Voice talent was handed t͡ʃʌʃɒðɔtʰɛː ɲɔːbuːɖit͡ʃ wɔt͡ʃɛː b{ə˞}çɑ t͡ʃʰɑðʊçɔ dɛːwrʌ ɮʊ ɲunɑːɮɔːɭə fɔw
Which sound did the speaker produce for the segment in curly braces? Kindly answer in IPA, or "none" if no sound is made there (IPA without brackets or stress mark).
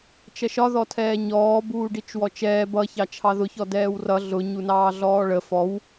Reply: ʌ